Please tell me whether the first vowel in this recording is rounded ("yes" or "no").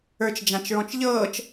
no